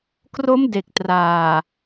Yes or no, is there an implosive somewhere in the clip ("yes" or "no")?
no